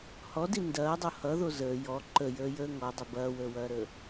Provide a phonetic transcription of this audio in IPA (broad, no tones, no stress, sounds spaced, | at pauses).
h ɔ d i n d ɐː dˤ o h ʌ ð o z əː j ɔ ǃ ə j əː j əː ŋ ɔ dˤ ə b ɐː w əː w ɐː ɾ əː